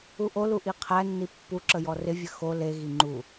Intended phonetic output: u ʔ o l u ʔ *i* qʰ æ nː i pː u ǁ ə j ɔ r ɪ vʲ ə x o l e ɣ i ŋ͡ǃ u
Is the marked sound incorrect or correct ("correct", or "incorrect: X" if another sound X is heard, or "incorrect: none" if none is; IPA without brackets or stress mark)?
correct